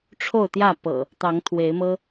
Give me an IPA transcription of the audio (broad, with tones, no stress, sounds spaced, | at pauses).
ʈ͡ʂʰ o˥˨ ʊ̯ t̪ j ä˥˨ p ɤ̰˨˩ | t̪ ɑ˨˦ ŋ t̪ʰ w e˨˦ ɪ̯ m ɤ˦